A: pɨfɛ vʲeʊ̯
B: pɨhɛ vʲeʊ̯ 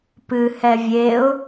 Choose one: B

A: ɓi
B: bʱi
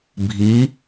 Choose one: B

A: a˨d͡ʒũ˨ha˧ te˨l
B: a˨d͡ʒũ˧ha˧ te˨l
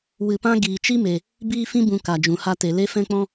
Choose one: A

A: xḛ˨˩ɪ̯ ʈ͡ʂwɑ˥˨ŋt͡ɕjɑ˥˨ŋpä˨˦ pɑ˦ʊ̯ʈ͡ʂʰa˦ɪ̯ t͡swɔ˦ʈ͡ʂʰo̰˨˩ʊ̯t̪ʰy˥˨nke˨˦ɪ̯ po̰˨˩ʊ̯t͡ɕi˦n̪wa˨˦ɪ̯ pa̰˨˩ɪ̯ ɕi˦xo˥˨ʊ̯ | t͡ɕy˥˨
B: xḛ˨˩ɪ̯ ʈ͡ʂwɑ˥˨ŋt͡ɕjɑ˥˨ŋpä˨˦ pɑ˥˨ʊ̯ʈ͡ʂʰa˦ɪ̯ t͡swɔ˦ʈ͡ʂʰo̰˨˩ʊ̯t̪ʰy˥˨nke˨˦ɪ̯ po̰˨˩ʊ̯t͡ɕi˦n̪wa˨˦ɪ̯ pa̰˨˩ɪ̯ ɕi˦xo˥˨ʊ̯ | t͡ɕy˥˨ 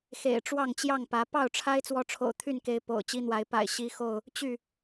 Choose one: B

